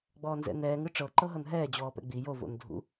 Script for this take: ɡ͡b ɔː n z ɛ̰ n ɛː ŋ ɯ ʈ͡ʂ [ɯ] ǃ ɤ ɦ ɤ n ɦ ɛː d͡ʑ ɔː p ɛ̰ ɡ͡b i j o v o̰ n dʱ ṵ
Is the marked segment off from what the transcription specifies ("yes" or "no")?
yes